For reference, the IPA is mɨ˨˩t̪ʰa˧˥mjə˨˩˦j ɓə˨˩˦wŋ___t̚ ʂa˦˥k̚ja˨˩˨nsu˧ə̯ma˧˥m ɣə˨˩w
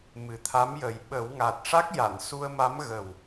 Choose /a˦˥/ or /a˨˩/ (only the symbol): a˨˩